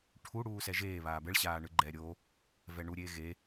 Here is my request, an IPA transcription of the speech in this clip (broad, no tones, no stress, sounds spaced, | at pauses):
ʈʰ u ɽ uː s ɛ ʒ eː β aː b ɛ ɭ ɕ aː ɳ ɯ ɡ͡ǃ ɛː ɾʲ o | v ɛ ɳ u ɾʲ eː ɣ e